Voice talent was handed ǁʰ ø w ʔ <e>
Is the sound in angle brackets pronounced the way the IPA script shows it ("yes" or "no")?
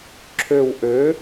no